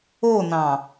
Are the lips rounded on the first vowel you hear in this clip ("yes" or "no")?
yes